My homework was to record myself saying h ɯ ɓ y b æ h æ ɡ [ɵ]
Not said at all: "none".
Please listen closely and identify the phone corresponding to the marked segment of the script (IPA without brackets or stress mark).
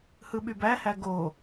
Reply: o